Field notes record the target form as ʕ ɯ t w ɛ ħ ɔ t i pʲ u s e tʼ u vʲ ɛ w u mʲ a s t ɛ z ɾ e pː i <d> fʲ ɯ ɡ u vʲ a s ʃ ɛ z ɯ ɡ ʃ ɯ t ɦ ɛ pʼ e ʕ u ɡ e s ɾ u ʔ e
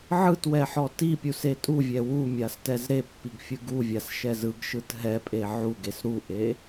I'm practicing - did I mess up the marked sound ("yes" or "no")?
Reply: yes